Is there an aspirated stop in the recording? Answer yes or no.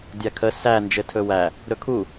yes